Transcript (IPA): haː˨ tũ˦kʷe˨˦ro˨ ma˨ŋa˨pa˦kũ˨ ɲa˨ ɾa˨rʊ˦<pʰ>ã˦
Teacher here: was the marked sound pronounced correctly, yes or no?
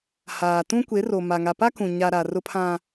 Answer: yes